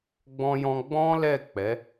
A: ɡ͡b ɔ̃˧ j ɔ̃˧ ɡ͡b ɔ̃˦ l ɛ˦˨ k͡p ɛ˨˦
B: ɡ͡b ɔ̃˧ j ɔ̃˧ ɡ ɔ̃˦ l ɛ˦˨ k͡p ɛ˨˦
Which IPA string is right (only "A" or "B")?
A